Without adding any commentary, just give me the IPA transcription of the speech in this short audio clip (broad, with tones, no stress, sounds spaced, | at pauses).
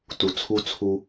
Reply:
t u˨ t͡sʰ u˦ t͡sʰ u˦